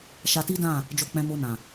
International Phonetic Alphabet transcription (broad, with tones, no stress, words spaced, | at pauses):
ʃa˧ti˦dã˦˨ | d͡ʒo˧k͡pɛ̃˧mo˧nã˨